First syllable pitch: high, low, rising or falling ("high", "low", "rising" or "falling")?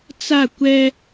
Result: falling